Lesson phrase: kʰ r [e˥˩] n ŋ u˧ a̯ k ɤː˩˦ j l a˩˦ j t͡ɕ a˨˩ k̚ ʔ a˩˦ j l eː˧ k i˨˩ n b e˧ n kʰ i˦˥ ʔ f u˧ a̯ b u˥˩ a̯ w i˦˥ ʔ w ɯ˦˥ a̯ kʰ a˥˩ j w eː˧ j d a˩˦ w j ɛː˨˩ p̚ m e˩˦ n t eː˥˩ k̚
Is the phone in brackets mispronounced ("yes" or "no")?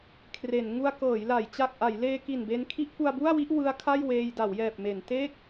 yes